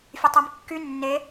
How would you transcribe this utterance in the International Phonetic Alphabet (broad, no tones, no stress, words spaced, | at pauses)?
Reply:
fʲøtˤemkːy nːe